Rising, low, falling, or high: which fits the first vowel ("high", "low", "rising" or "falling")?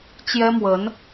high